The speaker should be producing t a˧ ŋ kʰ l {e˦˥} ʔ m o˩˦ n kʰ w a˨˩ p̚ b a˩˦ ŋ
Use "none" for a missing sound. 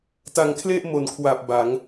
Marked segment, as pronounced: e˥˩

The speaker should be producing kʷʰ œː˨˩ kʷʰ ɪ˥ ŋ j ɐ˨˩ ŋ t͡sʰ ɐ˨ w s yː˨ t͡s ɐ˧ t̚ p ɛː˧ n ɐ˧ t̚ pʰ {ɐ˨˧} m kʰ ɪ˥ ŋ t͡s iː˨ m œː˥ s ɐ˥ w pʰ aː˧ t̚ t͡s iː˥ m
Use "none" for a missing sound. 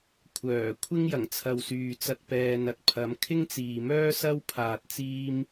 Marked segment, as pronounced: ɐ˨˧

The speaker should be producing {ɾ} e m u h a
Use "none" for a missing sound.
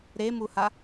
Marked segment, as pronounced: ɾ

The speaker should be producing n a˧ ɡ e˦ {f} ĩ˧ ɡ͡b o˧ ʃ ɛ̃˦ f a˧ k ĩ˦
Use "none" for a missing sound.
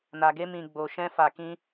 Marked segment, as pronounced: m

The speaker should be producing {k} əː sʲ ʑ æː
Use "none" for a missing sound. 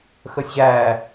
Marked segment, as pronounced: x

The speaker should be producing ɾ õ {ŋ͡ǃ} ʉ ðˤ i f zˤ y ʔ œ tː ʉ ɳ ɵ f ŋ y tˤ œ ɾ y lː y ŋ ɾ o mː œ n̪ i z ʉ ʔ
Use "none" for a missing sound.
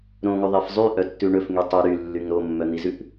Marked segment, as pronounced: ŋ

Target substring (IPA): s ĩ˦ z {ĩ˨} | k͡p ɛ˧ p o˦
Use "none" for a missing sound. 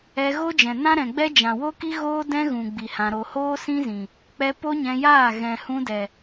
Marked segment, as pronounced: ĩ˨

